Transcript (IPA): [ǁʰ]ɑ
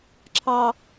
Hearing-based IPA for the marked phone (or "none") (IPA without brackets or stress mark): ǁʰ